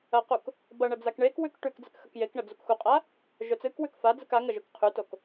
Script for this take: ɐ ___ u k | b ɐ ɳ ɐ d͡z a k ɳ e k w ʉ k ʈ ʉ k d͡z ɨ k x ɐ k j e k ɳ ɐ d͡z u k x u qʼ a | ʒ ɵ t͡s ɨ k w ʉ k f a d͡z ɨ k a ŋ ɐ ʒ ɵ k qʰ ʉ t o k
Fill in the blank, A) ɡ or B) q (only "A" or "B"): B